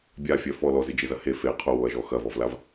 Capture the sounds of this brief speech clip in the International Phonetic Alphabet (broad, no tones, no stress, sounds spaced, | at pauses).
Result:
bʲ a fʲ œ f ɔ l ɔ z ɪ d͡ʒ ɪ z ɐ h e f e qʰ o w o ɐ̯ ʒ ɔ x ɐ v ɔ v l a v